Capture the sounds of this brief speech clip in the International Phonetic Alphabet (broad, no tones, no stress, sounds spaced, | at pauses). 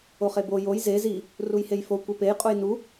o χ e b o j o j z e z i | r u j h e j f o kʷ e p e j qʼ u j n u